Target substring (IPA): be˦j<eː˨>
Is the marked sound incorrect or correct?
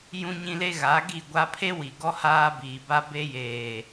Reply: correct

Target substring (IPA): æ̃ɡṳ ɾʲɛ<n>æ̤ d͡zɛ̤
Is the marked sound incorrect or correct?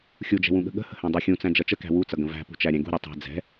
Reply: incorrect: tˤ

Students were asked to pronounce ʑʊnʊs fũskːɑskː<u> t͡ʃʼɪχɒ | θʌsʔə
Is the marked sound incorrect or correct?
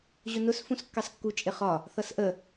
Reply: correct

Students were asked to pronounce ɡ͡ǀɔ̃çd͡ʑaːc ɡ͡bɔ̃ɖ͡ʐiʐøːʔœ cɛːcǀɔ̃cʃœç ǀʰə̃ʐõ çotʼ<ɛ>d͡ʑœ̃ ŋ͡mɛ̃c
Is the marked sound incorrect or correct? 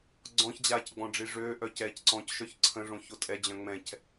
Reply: correct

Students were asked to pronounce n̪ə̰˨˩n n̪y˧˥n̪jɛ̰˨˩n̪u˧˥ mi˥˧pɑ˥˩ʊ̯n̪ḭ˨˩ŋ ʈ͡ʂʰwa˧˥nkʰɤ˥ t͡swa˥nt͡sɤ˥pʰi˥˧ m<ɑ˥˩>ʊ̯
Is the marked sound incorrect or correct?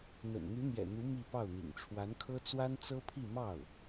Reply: correct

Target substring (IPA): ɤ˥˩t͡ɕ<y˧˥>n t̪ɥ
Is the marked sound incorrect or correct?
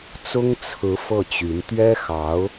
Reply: correct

